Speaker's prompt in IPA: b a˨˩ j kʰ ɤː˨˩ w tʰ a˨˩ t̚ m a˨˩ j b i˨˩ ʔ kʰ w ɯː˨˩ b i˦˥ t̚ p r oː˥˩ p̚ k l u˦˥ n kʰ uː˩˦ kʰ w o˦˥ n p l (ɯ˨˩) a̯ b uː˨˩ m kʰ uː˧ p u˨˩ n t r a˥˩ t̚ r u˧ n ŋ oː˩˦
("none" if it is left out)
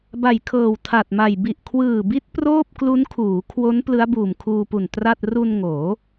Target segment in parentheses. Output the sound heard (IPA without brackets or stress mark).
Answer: ɯ˦˥